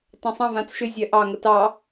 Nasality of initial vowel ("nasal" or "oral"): nasal